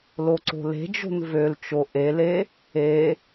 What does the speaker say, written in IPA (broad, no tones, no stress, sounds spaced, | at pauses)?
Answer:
l o ǀ o̤ l e̤ d͡ʒ o̤ n v ø l t͡ʃ o ʔ e l e | e